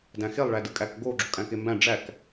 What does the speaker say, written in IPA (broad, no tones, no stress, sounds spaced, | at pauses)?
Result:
d æ̃ x e lˠ ɭ æ d ɯ kʼ æ k ɡ o ɡ͡ǁ o kʼ æ̃ k e m b æ̃ ɖ͡ʐ æ k